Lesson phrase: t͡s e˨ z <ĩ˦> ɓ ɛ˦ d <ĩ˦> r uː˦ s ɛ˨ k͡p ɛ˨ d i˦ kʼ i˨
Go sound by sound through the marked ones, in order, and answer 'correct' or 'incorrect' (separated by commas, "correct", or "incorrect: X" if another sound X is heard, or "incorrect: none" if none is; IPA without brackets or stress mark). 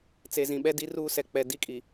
incorrect: ĩ˨, incorrect: i˦